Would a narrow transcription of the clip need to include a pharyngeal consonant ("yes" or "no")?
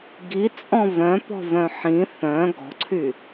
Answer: yes